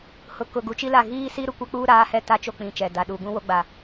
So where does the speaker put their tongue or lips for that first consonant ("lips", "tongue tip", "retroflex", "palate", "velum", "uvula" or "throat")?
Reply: throat